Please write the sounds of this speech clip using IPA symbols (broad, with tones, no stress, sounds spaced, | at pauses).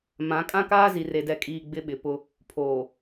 m ã˨˦ kʼ ã˦ k aː˦ z i˨ r e˨ d ɛ˨ kʼ iː˨ ɡ͡b ɪ˦ ɓ ɪ˨ p ʊ˦ | pʰ oː˨